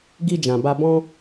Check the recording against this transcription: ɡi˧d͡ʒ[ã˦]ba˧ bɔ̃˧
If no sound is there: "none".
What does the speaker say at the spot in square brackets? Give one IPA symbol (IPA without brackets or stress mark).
ã˨